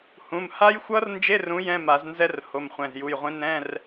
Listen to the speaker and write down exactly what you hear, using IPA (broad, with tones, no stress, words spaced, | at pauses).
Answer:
hũ˩˧˩mha˦˥jxʷʌ˦˥rnd͡ʒe˧˥˧r ũ˨˥ jɛ̃˧˥˧ma˨˩˦znzɛ˦˥r ho˩˧˩mχʷɛ̃˩˧˩zju˩˧˩jʁʷĩ˨˥ nɛ̃˧˥˧r